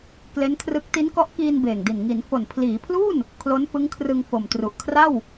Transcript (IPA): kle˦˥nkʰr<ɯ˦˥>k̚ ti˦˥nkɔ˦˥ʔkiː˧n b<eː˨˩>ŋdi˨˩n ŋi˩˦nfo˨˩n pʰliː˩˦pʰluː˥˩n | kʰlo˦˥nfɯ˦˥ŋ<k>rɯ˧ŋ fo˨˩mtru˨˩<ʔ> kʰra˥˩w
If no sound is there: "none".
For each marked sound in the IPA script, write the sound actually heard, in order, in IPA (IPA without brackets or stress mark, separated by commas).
ɯ˦˥, eː˨˩, kʰ, ʔ